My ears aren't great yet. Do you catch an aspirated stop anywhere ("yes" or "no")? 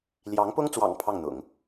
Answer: yes